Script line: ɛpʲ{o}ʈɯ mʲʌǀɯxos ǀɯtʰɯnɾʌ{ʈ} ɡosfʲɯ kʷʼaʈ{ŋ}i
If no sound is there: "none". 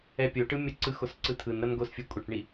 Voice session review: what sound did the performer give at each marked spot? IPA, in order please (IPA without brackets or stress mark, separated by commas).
o, n, ɳ